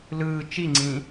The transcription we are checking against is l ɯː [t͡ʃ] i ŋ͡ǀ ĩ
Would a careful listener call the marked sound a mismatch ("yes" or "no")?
no